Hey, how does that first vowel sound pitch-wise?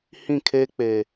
falling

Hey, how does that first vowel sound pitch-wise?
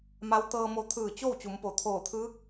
rising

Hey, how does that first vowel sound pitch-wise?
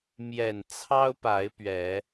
low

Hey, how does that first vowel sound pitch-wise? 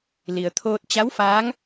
low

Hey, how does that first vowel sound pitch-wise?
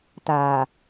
low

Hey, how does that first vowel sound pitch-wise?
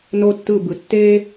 high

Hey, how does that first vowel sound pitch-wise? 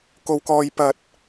high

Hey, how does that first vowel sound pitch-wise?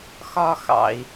high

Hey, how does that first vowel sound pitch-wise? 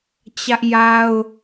high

